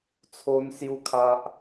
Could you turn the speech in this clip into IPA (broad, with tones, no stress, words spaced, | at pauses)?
t͡sʰo˦nsju˦kʰa˦ʔ